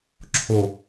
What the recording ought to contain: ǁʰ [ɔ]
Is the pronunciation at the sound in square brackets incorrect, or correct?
incorrect